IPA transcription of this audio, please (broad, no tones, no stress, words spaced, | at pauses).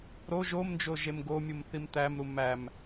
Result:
ɾo ʒomnd͡ʒo ʒemɡomʲumθim t̪æmɾu mæm